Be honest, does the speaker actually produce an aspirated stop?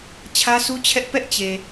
yes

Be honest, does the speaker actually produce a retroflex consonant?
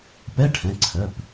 yes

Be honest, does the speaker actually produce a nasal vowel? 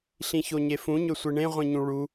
yes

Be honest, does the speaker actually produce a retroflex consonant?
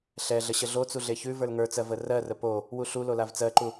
no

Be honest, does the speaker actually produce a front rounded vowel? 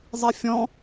no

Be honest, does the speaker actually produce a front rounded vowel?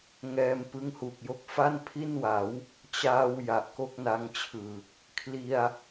no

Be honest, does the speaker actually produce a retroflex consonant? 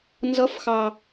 no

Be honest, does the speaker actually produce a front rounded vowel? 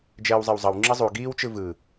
no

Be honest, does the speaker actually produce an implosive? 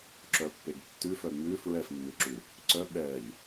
yes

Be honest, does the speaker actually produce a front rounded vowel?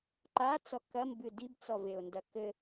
no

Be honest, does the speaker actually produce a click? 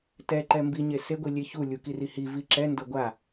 yes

